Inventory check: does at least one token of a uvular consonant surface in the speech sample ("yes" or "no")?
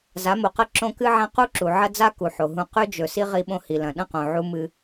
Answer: yes